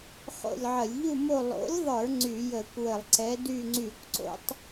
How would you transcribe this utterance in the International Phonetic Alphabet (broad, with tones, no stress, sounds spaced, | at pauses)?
χ o̰˦˨ lʲ ʕ ə˧˩˧ lʲ ʎ u˦˨ m o˦˨ lˠ o̰˨˥ lʲ ðˤ ə˞˧˩˧ ŋ͡ǀ y˧˩˧ j ə˧˩˧ kʷ w ə˧˩˧ lˠ ǀ ɛ˨˥ d y˦˨ ŋ͡ǀ y˧˩˧ kʷ ǀ o̰˦ tˤ